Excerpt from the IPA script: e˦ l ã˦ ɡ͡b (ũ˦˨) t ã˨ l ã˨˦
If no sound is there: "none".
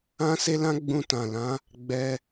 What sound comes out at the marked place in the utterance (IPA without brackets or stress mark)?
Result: ũ˧